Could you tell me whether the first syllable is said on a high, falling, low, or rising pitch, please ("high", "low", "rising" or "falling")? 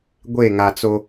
falling